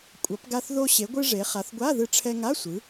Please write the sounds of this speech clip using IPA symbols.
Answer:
kʷʼ ʌ˩˧ p ɡ a˧ θ ð o˧ ɕ e˩˧ ɡʷ ɯ˧ ʐ e˩˧ χ a˩˧ θ ɡʷ a˧˥˧ ð ɯ˧ ʈ͡ʂʰ ɛ˧ ŋ a˧˥˧ sʷ ɯ˩˧

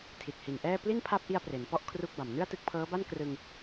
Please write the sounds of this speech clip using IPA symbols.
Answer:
tʰ i˨˩ t̚ h i˨˩ n ʔ ɛː˥˩ p l i˥˩ n pʰ a˦˥ p̚ ʔ i˧ a̯ p r e˩˦ n p ɔ˥˩ ʔ kʰ r u˥˩ k̚ b a˨˩ m n ɯ˥˩ a̯ t ɯ˦˥ k̚ pʰ ɤː˦˥ b a˥˩ n k r ɯ˧ ŋ

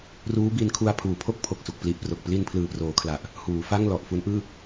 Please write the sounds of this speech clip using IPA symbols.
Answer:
r uː˦˥ b i˧ n kʰ u˧ a̯ pʰ uː˨˩ pʰ o˥˩ k̚ pʰ o˨˩ k̚ s u˨˩ k̚ p l i˨˩ ʔ p r o˨˩ k̚ p l i˧ n pʰ l ɯː˨˩ p r oː˩˦ kʰ l a˨˩ ʔ | h uː˩˦ f a˥˩ ŋ l ɔ˨˩ ʔ f u˦˥ n ʔ ɯː˥˩

